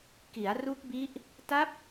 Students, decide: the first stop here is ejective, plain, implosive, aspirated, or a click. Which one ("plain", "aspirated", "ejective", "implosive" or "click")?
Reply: plain